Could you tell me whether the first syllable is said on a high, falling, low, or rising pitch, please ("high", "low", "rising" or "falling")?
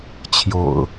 low